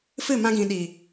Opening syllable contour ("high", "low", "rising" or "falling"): falling